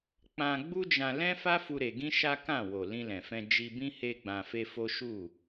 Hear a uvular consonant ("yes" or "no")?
no